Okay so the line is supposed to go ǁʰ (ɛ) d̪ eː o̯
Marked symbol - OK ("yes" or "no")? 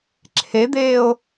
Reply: no